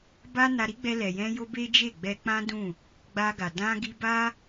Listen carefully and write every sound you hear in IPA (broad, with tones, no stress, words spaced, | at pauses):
ba˦ na˧ɾi˦ɡ͡bɛ˧ lɛ˨jɛ̃˧jo˧ be˦d͡ʒe˦˨ɡ͡bɛ˧ k͡pã˦dũ˦˨ | ɡ͡ba˧ɡa˨ dã˧ɡi˧ba˦